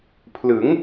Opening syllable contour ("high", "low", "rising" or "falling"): rising